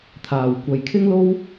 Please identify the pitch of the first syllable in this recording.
low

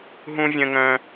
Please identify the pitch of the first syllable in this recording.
high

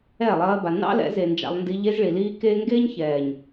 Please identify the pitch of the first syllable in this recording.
falling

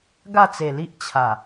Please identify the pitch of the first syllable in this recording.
falling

